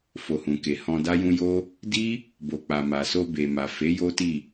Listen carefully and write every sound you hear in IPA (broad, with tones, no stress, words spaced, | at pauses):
fo˨hũ˨ke˨ hɔ̃˧da˦jũ˦ jo˦ | di˦ | bo˨k͡pa˨ma˨so˧ be˨ma˨fe˨˦ jo˦ti˦˨